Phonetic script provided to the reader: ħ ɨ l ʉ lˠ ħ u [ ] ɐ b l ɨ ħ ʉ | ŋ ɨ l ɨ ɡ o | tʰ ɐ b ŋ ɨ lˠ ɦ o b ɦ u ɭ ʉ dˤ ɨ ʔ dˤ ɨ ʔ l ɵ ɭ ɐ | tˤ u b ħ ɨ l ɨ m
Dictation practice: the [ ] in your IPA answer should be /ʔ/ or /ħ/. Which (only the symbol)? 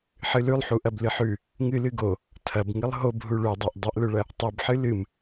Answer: ʔ